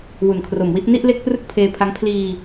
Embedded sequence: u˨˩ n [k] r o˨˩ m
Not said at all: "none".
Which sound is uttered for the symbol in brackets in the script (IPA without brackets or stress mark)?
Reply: kʰ